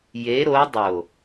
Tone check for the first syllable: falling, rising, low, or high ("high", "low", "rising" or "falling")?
rising